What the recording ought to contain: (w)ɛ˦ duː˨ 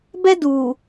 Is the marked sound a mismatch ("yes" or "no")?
yes